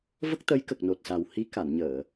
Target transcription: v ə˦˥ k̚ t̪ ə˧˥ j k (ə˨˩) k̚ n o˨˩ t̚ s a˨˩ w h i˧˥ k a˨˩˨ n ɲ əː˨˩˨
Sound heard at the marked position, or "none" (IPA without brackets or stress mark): ə˨˩